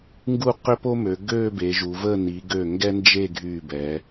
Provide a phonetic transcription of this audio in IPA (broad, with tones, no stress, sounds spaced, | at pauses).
ŋ ɡ u˥˧ q ø˥ p o˥ m ø˩˧ ɡ ø˥˧ b e˩˧ ʒ u˩˧ v ə˥˧ n i˩˧ ɡ ø˧˩ ŋ ɡ ɛ˥ n d͡ʒ e˥˧ ɡʱ y˧˩ b ɛ˩˧